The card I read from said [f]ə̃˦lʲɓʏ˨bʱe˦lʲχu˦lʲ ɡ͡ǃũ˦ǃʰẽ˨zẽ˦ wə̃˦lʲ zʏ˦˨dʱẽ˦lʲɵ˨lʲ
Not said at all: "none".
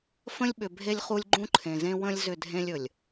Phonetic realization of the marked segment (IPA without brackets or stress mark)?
f